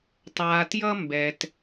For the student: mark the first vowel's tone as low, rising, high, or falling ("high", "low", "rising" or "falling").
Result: low